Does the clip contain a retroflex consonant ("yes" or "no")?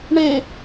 yes